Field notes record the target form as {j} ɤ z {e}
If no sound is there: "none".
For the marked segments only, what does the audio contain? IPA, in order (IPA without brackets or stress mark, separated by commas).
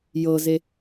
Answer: j, e